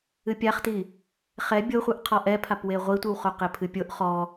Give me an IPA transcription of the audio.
ɨ pʲ a χ t i | χ ɛ bʲ o χʷ ɨ ʔ qʰ ɔ ʔ ɛ pʰ a p w e ʁʷ i tʷ ɨ w χ o q e pʰ ɨ pʲ o ʔ χ ɔ

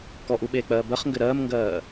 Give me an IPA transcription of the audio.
k ɔ ʔ u ɓ eː k͡p ɜː b ɜ χ ŋ ɡ ɘ ɾ ɜː m ŋ ɡ ɜː

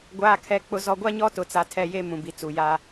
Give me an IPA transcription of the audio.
ɡʷ aː˨ kʰ ɛ˨ k͡p ʊ˨ z ɔ˨ ɡʷ a˦ ɲ ɔ˦ t ʊ˨ t͡s a˨ tʰ ɛ˦˨ j e˦ m ũ˨ b i˨ t͡s u˨ j a˦

